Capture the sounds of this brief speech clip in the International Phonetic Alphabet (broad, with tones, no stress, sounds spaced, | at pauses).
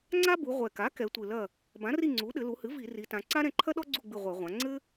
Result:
ŋ͡ǀ a˥ b u˩˧ ʁʷ ɛ˨˩ k a˩˥ k ɛ˩˧ tʷ ɨ˨˩ l ɐ˦˨ | b ã˩˥ r i˦˨ ŋ͡ǀ u˩˥ ɗ ɘ˩˧ l u˩˧ h ɨ˩˥ v i˧˩˧ r i˩˧ t ã˩˧ ǀ a˥ ɾ ɛ̃˦˨ ǃʰ ɐ˥ ɗ ɔ˥ ɡ͡ǀ u˦˨ ɡ͡b ɨ˦˨ ʁʷ ɛ˧˩˧ ʁʷ ã˩˧ ŋ͡ǀ ɘ˥